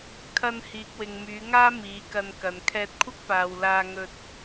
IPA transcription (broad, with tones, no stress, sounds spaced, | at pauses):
kʰ ɐ˧ n h iː˨ k̚ w ɪ˨ ŋ m yː˨˧ ŋ aː˥ m iː˨˧ k ɐ˧ n k ɐ˨ n kʰ ɛː˧ t̚ kʷʰ ɐ˥ k̚ p aː˨ w l aː˧ ŋ ɵ˧ t̚